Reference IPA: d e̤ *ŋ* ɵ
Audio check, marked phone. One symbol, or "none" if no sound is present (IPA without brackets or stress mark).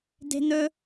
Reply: n̪